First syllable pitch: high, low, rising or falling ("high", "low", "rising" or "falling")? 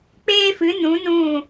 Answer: high